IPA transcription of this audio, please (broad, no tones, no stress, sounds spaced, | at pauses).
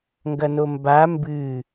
ŋ ɡ ɐ n o m b a m b ɨ